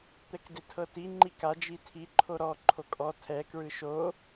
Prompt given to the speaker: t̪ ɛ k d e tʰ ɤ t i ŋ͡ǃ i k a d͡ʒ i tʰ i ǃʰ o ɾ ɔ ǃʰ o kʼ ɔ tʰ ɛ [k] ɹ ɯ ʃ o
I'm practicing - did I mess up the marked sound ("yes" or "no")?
no